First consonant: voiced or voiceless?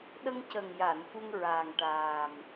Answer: voiced